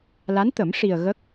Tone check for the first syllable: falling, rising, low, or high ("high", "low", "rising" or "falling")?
rising